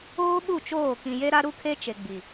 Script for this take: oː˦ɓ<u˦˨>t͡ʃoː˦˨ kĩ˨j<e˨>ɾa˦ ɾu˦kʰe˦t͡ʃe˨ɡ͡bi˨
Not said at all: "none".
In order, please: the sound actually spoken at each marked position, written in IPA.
u˦˨, e˦

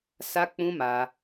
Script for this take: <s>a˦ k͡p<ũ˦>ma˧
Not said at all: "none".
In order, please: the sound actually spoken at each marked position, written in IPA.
s, ũ˦

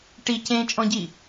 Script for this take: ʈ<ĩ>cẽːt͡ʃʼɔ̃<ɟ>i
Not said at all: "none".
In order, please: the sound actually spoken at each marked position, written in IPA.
i, ɟ

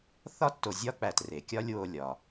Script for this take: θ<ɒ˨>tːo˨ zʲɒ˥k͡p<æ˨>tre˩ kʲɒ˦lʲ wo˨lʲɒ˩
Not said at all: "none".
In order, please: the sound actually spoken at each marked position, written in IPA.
ɒ˥, æ˨

